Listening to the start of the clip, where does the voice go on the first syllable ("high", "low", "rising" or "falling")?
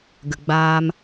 low